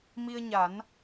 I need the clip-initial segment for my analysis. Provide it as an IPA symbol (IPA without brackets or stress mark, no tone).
m